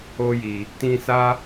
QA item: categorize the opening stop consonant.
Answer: plain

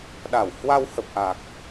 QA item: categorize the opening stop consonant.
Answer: implosive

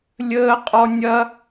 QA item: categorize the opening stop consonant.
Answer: ejective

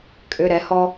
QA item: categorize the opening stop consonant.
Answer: ejective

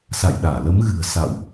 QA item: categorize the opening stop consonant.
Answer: implosive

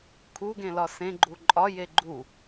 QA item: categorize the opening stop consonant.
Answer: aspirated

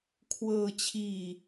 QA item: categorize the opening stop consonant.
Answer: aspirated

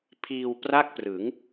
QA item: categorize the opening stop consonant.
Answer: aspirated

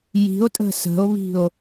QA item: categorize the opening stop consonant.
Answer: ejective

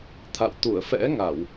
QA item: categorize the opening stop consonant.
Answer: aspirated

